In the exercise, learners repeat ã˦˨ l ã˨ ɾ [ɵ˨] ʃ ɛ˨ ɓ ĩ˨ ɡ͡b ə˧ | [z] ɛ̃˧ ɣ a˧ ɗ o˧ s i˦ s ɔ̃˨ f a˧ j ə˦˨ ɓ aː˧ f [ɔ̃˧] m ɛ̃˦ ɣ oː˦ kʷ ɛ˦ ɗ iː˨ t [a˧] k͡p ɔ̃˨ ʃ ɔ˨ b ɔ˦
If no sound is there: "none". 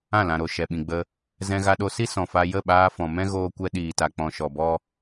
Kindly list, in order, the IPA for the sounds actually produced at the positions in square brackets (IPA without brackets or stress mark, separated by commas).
o˨, z, ɔ̃˨, a˨